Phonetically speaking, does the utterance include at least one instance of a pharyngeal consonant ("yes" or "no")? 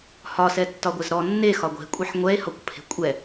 yes